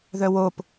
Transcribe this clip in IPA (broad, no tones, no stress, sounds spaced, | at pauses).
ð œ w o p